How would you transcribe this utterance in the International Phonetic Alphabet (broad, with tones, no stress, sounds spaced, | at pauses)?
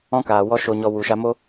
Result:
ɔ̃˦ k aː˨ w ɔ˦ ʃ o˧ ɲ ɔ˧ w u˨ ʃ a˧ m o˦